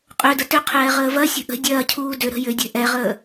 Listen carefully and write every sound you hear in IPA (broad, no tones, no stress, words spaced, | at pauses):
qʼødə tʏqʰɛː ʁəːvɐsʲə̤ ʔə̤ dʲɐːcʰuː dʏɾə̤ jʏdʲɛ̤ ʔɛʁəː